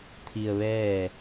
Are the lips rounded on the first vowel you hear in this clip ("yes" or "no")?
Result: no